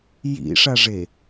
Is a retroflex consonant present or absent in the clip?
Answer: present